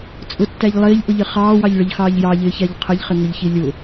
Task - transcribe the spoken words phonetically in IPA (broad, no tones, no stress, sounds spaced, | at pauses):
t͡sʼ ʊ tː æ ʎ lˠ ɪː ʎ ʔ ʊ ʎ ɪ χ ɑː w ɑ ʎ ɭ ə ʎ x ɑː ʎ j ɑ ʎ ɪː ç æ ʎ qʰ ə ʎ χ ɪ ŋ ʊ ʎ ç i lʲ ʊ